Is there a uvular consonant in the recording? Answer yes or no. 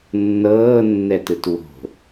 no